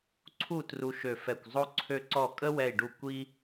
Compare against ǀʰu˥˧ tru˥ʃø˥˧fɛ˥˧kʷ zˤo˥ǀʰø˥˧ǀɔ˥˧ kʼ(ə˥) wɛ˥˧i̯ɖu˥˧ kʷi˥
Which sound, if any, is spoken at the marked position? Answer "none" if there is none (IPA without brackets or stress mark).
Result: ə˥